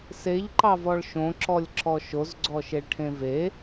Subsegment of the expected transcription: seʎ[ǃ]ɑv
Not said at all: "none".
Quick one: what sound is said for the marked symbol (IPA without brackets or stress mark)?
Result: ǃ